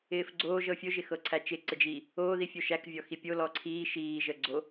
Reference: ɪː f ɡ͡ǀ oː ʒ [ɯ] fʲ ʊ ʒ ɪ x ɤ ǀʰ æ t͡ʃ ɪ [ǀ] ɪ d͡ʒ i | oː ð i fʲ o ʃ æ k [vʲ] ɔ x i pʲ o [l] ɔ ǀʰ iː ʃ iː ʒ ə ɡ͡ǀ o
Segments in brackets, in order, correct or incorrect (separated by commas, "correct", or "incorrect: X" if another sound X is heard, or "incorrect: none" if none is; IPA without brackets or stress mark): incorrect: ɤ, correct, correct, correct